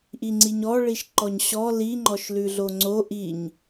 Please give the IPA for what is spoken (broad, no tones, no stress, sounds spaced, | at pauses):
ʔ i ŋ͡ǀ i ɲ ɔ ɭ i ʃ ǃ ɔ ɲ ɕ ɔ l i ŋ͡ǃ ɔ ʃ l ʉ ɮ o ŋ͡ǀ o ʔ i ɲ